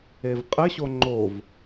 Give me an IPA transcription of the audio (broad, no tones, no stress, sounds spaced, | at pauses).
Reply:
e v qʼ ɘ ɕ o ŋ͡ǃ o v